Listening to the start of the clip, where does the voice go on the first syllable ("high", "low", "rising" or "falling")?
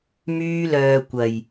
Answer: high